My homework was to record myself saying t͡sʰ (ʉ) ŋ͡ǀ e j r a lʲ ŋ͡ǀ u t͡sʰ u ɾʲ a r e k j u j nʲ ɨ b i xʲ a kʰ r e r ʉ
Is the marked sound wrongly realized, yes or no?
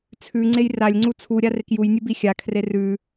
no